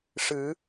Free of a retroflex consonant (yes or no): no